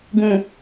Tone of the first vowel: low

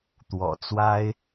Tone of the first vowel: low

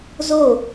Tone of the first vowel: falling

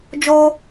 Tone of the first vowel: high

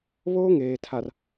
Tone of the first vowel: high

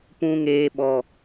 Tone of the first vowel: high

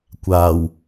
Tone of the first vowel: low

